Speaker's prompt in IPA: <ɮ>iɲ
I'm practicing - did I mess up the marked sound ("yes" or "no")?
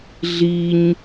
no